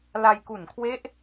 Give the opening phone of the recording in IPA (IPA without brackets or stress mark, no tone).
l